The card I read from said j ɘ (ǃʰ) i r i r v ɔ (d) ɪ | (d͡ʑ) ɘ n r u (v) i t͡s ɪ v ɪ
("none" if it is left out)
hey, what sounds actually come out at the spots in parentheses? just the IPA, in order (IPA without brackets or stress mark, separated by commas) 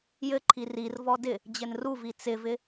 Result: ǃʰ, d, d͡ʑ, v